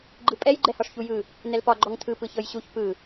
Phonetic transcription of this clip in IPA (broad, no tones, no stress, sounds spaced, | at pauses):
ɡ͡ǃ ɯ pʼ ɛ j ɡ͡ǃ ɛ h ɒ ʂ ç u j ɯ | n ɛ l p ɒ ɡ͡ǃ ɔ ŋ tʰ ɯ p ɯ ç ɤ j ɕ u ç p ɯ